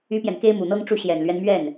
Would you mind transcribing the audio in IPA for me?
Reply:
y˥ p j ɛ˨ n k e˥ ɪ̯ m u˨˩ n̪ ɤ˥ ŋ ʈ͡ʂ u˥˩ ɕ j ɛ˨˩ n l ɥ ɛ˦ n m ɥ ɛ˥˩ n

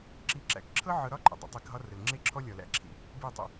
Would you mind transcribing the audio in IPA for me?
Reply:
ǁ i˦ ǁ æ̰˨˦ k ǁʰ ɤ˦ ʕ ɤ˧ ɾ ɒ˦ ǃʼ ə̰˨ dˤ ə̰˧ tˤ i˧ k ɦ ɒ˦ r ə˨ l ŋ͡ǁ e˦ ǁʰ ɔ˦ lʲ ɒ˨ l æ̰˦ ǁʰ ḭ˧ | b i˦˨ tˤ ə̰˧

